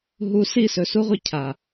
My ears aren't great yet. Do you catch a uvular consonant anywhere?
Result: yes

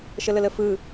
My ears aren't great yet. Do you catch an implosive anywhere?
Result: no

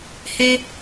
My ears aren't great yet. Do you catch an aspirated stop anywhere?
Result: no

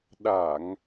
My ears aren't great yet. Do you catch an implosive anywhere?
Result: yes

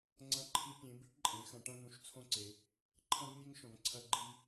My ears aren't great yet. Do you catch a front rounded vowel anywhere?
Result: no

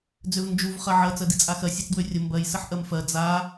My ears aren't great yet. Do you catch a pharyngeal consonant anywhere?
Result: yes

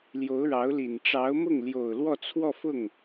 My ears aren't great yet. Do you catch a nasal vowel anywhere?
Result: no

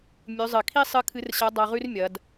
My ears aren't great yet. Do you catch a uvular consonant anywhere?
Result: yes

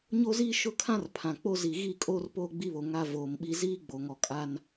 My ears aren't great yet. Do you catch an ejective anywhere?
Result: yes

